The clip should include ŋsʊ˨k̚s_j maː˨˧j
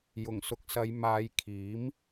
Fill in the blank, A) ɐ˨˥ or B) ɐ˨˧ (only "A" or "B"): B